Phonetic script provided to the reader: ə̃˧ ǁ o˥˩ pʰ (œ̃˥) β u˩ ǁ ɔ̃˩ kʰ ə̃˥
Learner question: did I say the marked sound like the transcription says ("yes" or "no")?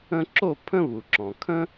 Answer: no